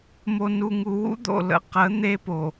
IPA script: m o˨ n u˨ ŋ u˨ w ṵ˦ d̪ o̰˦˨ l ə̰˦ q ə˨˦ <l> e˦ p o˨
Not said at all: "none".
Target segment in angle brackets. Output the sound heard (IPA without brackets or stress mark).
n̪